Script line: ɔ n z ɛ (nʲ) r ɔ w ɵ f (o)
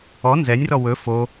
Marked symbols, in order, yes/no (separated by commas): yes, yes